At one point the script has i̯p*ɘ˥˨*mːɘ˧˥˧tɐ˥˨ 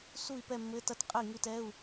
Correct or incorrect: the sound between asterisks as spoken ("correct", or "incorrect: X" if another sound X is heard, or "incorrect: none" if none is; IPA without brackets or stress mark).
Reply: incorrect: ɛ˥˨